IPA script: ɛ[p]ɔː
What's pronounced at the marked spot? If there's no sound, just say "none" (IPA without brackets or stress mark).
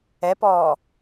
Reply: p